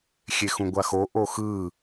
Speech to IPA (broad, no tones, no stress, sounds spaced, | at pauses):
xʲ e x ũ ɡʷ a x o ʔ o x ɯ